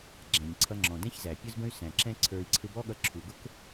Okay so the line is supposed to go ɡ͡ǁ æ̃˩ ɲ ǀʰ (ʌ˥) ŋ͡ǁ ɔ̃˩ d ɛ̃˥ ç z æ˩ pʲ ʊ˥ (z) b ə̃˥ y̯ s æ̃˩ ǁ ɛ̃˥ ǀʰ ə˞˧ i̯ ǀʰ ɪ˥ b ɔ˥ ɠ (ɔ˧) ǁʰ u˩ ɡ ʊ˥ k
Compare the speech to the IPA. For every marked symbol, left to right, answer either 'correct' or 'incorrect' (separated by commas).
incorrect, correct, incorrect